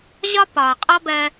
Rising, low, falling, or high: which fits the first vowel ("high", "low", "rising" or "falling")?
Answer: high